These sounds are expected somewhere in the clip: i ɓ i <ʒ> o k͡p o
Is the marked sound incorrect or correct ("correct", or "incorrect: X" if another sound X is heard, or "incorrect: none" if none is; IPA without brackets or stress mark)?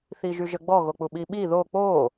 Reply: incorrect: ð